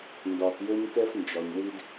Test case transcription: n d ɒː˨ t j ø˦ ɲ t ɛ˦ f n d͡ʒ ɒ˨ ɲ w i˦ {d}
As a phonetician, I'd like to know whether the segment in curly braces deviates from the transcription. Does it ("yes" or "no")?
no